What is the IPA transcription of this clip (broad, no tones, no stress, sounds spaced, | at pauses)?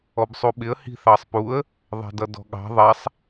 ɔ b sˤ u ɓ ɪ ə̯ h i̤ θ ɑ sˤ p u ə̯ | ðˤ ɛ̤ d ʌ d ɔ̤ ɠ ɑ̤ ðˤ ɛ sˤ